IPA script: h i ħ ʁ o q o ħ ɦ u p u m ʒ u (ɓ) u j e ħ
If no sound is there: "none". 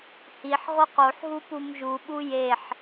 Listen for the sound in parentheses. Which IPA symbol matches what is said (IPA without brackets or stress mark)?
ɓ